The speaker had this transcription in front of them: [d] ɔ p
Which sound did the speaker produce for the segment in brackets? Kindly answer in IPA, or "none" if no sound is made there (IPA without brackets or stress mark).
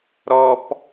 ɾ